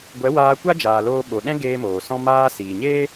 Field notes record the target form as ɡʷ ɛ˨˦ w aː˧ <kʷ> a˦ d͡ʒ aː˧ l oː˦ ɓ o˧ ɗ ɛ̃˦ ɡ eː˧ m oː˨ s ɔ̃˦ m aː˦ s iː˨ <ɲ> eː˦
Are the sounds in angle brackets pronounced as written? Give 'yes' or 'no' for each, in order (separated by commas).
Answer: yes, yes